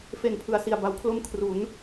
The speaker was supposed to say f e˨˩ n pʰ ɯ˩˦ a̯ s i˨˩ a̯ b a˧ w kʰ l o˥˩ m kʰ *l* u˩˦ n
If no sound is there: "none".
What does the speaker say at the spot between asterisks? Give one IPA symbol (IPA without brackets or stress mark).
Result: r